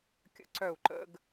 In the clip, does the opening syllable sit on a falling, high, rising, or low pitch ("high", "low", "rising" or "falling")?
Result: high